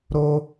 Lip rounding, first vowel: rounded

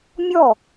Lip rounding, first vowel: rounded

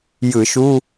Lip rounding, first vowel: unrounded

